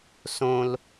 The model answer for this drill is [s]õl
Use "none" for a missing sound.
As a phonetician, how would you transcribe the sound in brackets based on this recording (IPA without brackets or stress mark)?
s